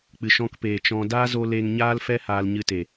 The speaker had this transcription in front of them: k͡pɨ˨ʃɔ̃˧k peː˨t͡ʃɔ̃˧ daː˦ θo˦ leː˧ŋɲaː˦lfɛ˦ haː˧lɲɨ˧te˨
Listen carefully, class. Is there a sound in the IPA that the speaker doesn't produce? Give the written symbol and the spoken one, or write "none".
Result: θ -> z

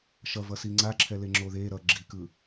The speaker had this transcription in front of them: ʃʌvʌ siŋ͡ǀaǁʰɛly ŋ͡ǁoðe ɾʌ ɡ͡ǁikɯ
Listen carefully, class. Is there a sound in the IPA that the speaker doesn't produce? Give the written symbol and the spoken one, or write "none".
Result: y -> e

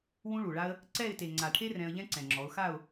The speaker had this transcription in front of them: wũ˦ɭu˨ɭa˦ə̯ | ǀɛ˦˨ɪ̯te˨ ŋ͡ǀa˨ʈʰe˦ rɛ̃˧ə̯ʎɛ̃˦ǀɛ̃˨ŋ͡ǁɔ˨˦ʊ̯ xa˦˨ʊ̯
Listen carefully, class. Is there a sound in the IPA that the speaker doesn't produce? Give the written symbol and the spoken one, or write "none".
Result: none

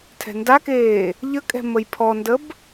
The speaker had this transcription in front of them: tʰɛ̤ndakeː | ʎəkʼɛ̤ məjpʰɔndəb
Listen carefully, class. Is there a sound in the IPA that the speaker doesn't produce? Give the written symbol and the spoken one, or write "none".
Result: none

